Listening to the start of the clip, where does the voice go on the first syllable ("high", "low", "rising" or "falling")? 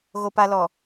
low